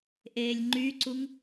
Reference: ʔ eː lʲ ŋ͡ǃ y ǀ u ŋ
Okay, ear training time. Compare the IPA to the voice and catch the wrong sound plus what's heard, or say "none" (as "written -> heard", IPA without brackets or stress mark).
none